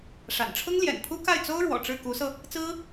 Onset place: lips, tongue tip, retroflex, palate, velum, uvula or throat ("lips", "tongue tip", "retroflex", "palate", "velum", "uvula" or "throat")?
retroflex